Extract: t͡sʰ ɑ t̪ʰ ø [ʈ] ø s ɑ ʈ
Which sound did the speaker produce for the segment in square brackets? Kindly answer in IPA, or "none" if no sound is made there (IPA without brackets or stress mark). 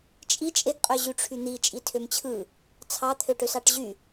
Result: ʈ